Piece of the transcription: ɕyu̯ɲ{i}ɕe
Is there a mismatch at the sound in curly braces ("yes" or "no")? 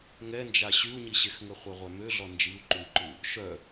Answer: no